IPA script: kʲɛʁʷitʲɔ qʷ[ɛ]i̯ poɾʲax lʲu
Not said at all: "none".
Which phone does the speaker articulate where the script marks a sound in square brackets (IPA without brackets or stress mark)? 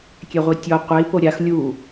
ɛ